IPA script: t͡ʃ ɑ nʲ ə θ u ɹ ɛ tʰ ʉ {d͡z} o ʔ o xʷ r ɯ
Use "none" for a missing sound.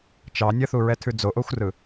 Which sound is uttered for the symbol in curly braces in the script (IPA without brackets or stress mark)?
d͡z